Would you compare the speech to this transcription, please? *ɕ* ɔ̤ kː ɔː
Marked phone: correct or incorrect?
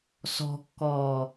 incorrect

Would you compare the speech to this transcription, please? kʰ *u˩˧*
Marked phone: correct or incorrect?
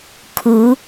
correct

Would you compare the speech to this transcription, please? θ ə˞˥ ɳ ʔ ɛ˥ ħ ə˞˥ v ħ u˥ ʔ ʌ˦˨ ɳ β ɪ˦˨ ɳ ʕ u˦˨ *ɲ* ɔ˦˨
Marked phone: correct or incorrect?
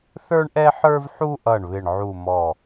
incorrect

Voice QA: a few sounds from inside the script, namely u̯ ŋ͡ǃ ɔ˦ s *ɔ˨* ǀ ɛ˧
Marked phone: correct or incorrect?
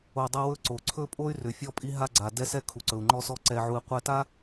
incorrect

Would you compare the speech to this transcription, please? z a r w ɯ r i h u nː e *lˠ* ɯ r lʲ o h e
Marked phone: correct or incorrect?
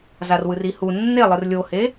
correct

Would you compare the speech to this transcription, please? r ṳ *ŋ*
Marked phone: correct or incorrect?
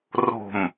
incorrect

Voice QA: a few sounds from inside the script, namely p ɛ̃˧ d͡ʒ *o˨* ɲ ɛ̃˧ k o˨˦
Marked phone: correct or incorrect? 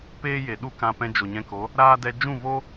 correct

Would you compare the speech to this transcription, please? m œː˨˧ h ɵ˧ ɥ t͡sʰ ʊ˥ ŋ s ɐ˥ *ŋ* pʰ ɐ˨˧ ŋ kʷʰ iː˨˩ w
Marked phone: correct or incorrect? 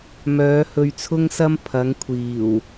incorrect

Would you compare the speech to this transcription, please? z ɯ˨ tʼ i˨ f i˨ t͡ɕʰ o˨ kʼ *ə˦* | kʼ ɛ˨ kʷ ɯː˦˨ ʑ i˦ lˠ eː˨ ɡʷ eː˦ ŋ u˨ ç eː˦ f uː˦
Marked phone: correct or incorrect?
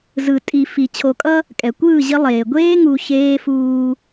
incorrect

